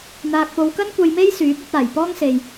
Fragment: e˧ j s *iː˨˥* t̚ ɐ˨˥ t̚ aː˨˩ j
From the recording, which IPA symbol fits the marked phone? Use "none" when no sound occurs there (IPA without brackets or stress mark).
yː˨˥